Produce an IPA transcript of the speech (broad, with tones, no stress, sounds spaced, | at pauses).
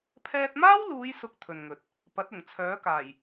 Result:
pʰ ɛː˧ t̚ m aː˥ w l uː˨˧ j s ʊ˨ k̚ t̪ʰ ɵ˨ n ŋ ɵ˨˥ t̚ | p ɐ˨˥ t̚ ʊ˨˩ ŋ t͡sʰ œː˨˥ k aː˨˩ j